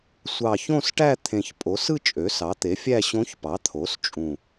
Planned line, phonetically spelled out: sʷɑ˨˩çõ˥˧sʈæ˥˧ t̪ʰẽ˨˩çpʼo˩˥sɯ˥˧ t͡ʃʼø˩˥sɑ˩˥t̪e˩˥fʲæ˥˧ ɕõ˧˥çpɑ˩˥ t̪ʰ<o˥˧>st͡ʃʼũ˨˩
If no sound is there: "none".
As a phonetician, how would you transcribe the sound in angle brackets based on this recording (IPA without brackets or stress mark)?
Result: o˩˥